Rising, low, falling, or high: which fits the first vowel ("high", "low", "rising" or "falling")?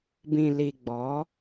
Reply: low